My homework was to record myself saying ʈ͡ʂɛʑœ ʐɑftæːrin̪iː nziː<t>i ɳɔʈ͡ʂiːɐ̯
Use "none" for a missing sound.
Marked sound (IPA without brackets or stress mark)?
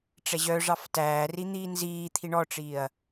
t̪ʰ